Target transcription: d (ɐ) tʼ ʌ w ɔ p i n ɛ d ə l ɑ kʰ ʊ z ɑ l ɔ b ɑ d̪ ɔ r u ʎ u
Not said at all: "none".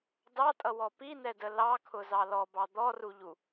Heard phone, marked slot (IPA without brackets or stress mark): ɑ